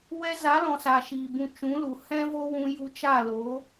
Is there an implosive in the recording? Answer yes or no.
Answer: no